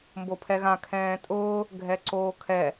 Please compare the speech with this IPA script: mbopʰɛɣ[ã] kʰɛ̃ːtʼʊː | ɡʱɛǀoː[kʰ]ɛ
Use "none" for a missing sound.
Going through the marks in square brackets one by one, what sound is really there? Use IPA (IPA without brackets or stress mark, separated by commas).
ã, kʰ